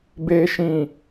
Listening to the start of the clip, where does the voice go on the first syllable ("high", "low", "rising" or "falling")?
low